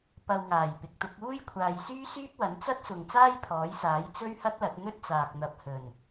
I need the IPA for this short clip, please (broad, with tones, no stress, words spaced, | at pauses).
pɐ˨wŋaː˨˩j pɪ˨˥k̚t̪ʊ˨˥k̚ uː˥j kʷʰaː˨jsyː˥syː˥p̚wɐ˨˥n t͡sɐ˥t̚sʊ˨ŋ t͡saː˥jpʰɔː˨˥jsaː˨˥j t͡sɵ˥ɥhɐ˥t̚lɐ˨˥t̚ n̪ɵ˥t̚t͡saː˨k̚ n̪ɐ˨˥p̚hɵ˨˩n